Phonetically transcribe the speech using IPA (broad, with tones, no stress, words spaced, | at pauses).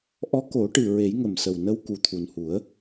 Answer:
ʔɔ˧˥ ko˨˩˦ʈɨ˨˩ ɹe˨˩˦jŋə˨˩msə˨˩wnə˧w ku˨˩t̪ʰu˨˩nhu˨˩˦ə̯